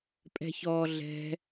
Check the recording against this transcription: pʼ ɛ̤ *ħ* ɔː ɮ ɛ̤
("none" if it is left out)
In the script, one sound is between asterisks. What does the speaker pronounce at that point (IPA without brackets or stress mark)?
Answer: ç